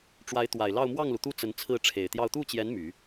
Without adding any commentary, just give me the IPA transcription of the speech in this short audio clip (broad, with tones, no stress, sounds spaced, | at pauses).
ʈ͡ʂ w a˧˥ ɪ̯ t̪ w a˨˩ ɪ̯ l ɑ˥˧ ʊ̯ m w ɑ˥˩ ŋ l u˩ t̪ u˥˩ t͡s ə˧˥ n t͡sʰ ɹ̩˥˩ ʈ͡ʂʰ e˨˩ ɪ̯ t̪ j ɑ˥˧ ʊ̯ t̪ u˥˩ t͡ɕ j ɛ˧˥ n m y˨˩˦